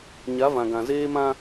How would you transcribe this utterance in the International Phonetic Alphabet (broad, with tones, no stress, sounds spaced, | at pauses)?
ɲ a˨˦ v ã˨ ɡ ã˨ z eː˦ m ã˦